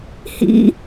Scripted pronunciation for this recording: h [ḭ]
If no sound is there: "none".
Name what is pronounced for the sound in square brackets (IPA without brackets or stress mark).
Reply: ḭ